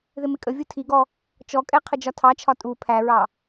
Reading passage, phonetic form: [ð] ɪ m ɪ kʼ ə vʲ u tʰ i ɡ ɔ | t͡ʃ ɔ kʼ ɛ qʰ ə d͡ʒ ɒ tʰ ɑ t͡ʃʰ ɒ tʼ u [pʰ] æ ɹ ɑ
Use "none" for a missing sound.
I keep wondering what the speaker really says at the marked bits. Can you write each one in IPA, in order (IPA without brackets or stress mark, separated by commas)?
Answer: ð, pʰ